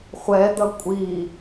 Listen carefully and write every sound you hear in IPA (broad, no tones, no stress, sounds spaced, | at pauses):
χʷ ɛ d̪ ʌ kʷʼ i